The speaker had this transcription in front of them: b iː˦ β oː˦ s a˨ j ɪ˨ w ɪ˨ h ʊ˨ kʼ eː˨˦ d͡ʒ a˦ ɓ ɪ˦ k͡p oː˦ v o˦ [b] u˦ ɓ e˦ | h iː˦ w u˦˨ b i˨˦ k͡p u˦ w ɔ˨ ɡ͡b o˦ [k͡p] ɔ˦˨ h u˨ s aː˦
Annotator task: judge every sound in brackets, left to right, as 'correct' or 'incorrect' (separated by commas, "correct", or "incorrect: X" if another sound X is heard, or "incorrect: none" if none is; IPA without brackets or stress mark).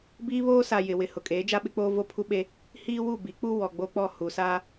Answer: incorrect: pʰ, correct